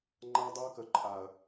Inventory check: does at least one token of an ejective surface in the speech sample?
yes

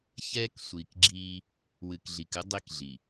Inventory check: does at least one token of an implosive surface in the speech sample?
no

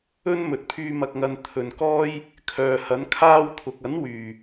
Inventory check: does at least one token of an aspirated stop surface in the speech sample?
yes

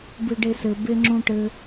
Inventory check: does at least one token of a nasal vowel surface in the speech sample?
yes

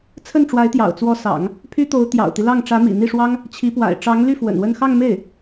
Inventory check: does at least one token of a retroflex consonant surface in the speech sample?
yes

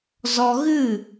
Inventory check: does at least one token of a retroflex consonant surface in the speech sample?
no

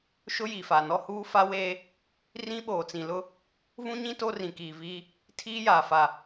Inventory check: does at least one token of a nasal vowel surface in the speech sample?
yes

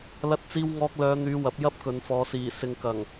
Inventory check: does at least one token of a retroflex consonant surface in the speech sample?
no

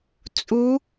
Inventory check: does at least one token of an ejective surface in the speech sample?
yes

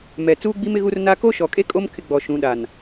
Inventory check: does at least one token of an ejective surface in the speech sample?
yes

